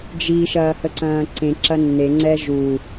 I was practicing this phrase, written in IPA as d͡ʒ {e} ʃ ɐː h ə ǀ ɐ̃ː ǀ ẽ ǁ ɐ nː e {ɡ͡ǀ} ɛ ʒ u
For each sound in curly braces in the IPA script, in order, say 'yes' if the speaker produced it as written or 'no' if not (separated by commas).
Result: no, no